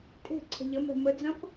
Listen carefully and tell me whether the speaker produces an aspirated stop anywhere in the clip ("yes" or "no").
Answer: yes